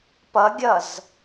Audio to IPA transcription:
p ʌ ɡʲ ʌ z

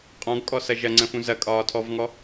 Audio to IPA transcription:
qʼ ɔ̃ ɡ kʼ ɔ s ɐ ʒ ɐ ŋ͡ǀ ə̃ f ũ z ɐ kʼ ɒː tʰ ɔ v ŋ ɔ

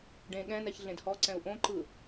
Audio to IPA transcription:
ɖ ẽ ɠ ɛ̃ n ɛ ç ɮ ẽ d h ɔ ǀ ɛ̃ u̯ ʔ õ ǃ ɯ

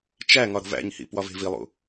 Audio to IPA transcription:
t͡ʃ æ ŋ ɒ ɾ o̤ v æ̰ ɲ h ḭ p w ɒ v e̤ v i lˠ ṵ

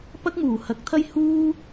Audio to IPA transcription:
p ɐ˥ k̚ m uː˨˩ h ɐ˨˥ k̚ t̪ʰ ɐ˥ j h uː˥

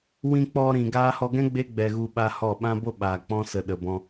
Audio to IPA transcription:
w ĩ˧ k͡p ɔ˧ ɾ ĩ˨ ɡ aː˧ h ɔ˧ ɡ ɛ̃˦ ɡ͡b e˦ ɡ͡b ɛ˨ ɣ u˧ ɓ a˦ h ɔ˦˨ ɓ ã˦ b o˦ ɓ aː˨ k͡p ɔ̃˦ s ə˧ ɗ ə˧ b ɔ̃˦

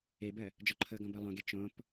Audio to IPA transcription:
e b ɜ | d͡ʒ ɔ ǃʰ ɤ ɡ ɔ̃ b ɤ lˠ õ ɡ e t͡ʃ õ p

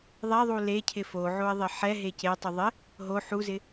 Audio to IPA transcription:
ðˤ ɛ ðˤ u l e cʰ ɪ f o ʕ o ɪ̯ ðˤ ɪ ħ ɛ ɦ e c e tˤ u ðˤ ɪ | ɦ o ħ u z ɪ

